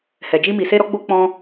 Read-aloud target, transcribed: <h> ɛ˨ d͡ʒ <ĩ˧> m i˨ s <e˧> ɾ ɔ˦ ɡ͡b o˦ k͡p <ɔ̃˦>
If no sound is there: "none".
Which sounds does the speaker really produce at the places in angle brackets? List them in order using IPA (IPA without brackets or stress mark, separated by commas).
h, i˧, e˧, ɔ̃˦